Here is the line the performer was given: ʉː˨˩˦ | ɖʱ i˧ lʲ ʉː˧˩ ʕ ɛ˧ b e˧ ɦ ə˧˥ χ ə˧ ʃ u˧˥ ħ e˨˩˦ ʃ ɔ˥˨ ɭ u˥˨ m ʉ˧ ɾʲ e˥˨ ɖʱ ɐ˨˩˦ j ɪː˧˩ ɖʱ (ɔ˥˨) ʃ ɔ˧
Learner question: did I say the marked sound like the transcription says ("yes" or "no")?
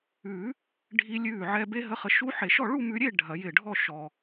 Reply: yes